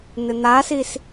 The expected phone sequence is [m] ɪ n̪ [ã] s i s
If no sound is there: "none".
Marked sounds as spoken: n̪, a

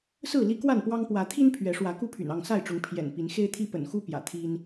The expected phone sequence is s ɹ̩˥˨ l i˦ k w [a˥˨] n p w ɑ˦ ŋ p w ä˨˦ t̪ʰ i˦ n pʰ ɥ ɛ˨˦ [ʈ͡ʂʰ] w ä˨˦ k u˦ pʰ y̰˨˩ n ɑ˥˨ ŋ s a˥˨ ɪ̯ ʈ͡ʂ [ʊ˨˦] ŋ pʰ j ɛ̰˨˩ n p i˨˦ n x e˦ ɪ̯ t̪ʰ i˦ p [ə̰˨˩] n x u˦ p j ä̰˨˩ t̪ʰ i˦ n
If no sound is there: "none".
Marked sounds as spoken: a˥˨, ʂ, ʊ˨˦, ə̰˨˩

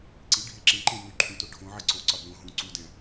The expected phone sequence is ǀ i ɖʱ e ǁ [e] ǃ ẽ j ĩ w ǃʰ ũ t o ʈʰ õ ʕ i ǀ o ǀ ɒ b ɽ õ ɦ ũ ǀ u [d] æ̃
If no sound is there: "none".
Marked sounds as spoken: ẽ, d

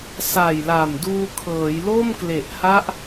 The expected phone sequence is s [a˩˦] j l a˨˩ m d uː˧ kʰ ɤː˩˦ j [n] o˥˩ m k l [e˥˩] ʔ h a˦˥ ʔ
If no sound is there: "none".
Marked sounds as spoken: a˨˩, l, e˨˩

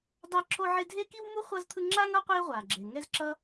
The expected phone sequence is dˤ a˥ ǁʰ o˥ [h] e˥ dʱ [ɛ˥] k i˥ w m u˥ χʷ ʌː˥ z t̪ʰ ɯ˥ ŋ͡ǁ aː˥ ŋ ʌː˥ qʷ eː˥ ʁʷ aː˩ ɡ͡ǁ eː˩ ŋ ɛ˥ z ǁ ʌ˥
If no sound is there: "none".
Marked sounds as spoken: ʕ, e˥

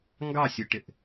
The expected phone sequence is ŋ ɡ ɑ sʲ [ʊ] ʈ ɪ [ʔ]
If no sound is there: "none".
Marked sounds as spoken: ʊ, ʔ

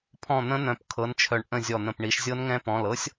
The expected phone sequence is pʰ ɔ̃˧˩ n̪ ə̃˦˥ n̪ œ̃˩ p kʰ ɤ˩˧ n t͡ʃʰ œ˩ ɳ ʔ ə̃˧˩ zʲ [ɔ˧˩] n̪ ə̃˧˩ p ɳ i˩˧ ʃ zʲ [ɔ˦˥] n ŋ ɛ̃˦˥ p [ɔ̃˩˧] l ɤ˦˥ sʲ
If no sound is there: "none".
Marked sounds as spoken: ɔ˧˩, ɤ˦˥, ɔ̃˩˧˩

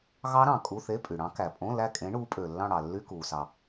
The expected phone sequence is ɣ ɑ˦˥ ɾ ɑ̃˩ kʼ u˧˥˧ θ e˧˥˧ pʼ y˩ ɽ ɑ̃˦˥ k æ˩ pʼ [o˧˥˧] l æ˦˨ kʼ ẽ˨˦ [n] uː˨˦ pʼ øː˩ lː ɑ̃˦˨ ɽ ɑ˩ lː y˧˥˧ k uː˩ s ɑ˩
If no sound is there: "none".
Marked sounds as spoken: õ˧˥˧, ɳ

